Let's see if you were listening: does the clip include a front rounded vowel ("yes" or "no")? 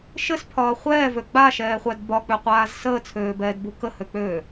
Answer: yes